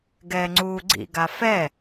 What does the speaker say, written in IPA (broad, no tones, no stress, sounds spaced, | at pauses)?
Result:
ɡ ɛː ŋ͡ǀ uː ɡ͡ǀ ḭ ɡ a f ɛ